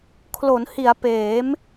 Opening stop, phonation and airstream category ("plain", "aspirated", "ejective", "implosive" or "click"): aspirated